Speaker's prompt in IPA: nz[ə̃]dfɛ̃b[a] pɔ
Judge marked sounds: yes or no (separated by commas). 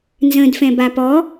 yes, yes